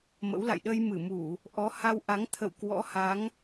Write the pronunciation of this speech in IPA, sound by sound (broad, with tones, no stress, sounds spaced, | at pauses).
m ə̰˧˥ w l a̰˧˨ j ɗ ə˧ j m ɨ˧˩ m u˧˩˨ | ʔ ɔ˨˦ h a˧ w ʔ a˨˦ ŋ t̪ʰ ə̰˧˨ w k w ɔ̰˧˥ h a˨˦ ŋ